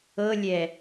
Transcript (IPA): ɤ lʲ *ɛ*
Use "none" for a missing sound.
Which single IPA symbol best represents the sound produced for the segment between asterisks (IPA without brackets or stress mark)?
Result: ɛ